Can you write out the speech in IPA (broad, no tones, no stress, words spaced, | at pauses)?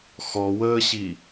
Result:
xɔwəːɕi